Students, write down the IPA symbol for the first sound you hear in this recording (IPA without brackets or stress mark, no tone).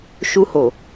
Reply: ʃ